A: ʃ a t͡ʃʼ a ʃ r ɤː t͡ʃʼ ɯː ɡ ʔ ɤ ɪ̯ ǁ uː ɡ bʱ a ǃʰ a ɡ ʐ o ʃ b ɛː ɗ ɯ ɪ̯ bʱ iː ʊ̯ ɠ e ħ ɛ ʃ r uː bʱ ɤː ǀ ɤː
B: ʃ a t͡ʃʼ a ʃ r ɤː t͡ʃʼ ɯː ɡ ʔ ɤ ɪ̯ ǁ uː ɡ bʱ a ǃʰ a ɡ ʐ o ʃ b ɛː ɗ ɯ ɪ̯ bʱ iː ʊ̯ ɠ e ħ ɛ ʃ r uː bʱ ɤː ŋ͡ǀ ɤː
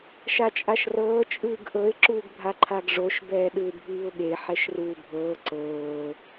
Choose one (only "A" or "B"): A